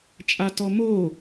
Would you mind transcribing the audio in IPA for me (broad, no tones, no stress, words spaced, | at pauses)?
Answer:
t͡ʃʼatɔmo